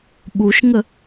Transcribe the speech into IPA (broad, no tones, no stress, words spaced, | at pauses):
ɓuʃŋə